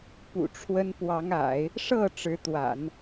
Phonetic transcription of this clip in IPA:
p ṵ˨˩ ʈ͡ʂʰ w ə˥ n p w ɑ˧˥ ŋ a̰˨˩˦ ɪ̯ | ʂ ɤ˥˩ ʈ͡ʂ ɻ̩˧˥ t̪ w a̰˨˩˦ n

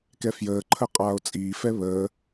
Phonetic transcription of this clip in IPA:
k ɛ f j əː ǃʰ ə qʼ aː o̯ t͡sʼ iː f ɛ β əː

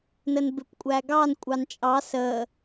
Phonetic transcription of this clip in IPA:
n ə n b ɪ p kʷʼ æ ɡ ɑ n kʷʼ ɑ n t͡ʃʼ ɑ s ə

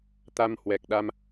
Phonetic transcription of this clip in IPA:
t̪ a˧ m h w ɛ˨˩ k̚ ɗ a˧ m

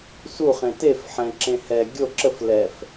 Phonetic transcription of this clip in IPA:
s u χ ẽ t e f ħ ɛ̃ ǁ ẽ h ɛ ɡʲ o ǁ ə f l ɛ f

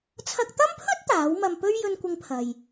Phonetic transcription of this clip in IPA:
t͡sʰ ɐ˧ k̚ t̪ ɐ˥ m pʰ ɵ˥ t̚ t̪ aː˨˥ w m ɐ˧ m p ɵ˥ ɥ j ɵ˥ n kʷ ɪ˥ ŋ pʰ ɐ˧ j

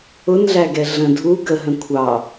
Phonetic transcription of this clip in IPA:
ʊ n ɮ æ ɡ ɛ ɮ ə̃ dʱ u ɡ ə ɦ ə̃ kʷʰ ɑ

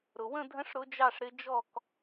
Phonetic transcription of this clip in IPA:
ɾ ʊ˨ w ə̃˥˧ dʱ ə̃˦˥ ʂ ɾ ʊ˦˥ d͡ʒ ɑ˥˧ ʂ ɾ ɪ˦˥ d͡ʒ ɔ˥˧ k

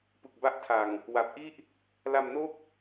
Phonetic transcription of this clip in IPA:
p ɯ˨˩ k̚ b a˦˥ ʔ tʰ a˨˩ ŋ | w a˨˩ p̚ ʔ i˥˩ ʔ | l a˧ m n o˥˩ k̚

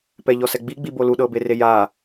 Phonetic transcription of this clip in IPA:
p ɛ ʎ ɔ s ɛ ɡ͡b i ɡ͡b i b o l u ɗ ɤ b e r e j a

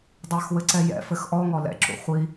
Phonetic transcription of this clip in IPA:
dˤ a x w ɘ ǀ ɛ j ɛ̰ f ɘ x ʔ ɔ ŋ ɔ l ɛ̰ ǁ ṵ χʷ i

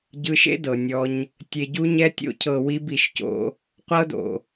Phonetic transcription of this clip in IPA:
ɟ ɯ˧ ʃ ḛ˦ d ɤ˨ nʲ ɔ˧ ɲ | tʲ e˨ ɟ u˧ ɲ ɛ˧ tʲ o̰˧ cʰ ɤ˨ w i˧ b i˨ ʃ c o̰˧ | qʷ ɤ˧ d o̰˨

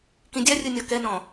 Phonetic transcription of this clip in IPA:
k ĩ dʲ a rʲ ɯ nʲ ɔ k ɛ n ɔ̃

